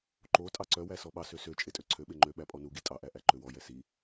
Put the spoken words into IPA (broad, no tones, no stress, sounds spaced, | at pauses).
ǃ o tʼ ɑ ǀ œ w æ s ɔ ɓ ɑ s ø s ø t͡ʃʼ e tʼ ø ǀʰ ø ɓ e ŋ͡ǃ ø ɓ æ pʼ ɔ n u ɡ i tʼ ɑ ʔ æ ʔ æ ǃ ø w ɔ j ɛ s i